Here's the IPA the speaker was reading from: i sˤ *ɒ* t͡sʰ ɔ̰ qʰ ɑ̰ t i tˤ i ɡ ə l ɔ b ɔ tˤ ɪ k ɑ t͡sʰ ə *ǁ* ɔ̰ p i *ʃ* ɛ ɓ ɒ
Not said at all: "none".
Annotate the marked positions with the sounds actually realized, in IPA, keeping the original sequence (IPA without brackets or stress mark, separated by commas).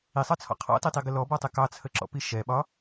ɑ, ǁ, ʃ